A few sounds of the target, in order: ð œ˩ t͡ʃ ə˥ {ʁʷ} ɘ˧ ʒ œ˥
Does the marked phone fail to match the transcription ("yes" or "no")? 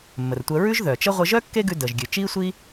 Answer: no